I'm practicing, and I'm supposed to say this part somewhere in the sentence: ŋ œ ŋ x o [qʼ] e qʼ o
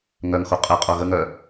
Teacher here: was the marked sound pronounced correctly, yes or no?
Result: yes